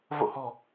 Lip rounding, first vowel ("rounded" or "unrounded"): rounded